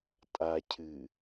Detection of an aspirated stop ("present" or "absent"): present